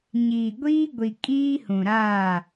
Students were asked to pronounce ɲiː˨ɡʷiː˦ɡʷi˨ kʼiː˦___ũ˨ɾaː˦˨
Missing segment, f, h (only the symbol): h